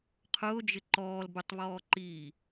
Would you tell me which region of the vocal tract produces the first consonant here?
uvula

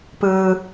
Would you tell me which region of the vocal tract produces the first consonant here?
lips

